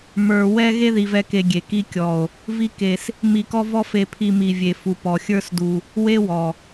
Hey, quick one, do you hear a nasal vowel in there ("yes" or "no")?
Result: no